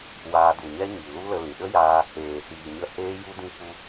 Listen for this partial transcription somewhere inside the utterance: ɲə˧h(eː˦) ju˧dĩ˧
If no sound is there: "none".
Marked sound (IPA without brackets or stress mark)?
eː˧